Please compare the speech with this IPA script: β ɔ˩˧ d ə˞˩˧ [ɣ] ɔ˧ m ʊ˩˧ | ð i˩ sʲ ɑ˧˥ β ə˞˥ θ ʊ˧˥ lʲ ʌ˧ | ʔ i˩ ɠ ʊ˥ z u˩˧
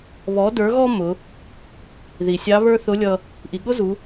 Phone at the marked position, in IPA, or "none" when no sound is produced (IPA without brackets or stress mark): ɣ